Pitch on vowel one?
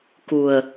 low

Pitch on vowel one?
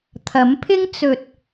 rising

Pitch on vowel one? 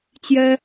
high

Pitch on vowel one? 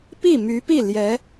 falling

